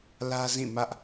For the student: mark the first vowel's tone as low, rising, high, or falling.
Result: high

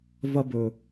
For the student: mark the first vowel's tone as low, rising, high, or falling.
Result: high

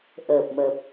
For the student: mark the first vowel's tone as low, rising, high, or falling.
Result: low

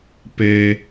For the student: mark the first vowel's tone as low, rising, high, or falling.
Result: low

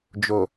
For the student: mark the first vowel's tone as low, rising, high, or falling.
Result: low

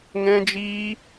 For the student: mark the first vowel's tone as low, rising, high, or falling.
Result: high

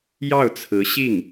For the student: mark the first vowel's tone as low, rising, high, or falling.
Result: falling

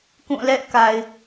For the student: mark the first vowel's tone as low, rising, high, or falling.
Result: falling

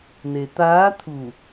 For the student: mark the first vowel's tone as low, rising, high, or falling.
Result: low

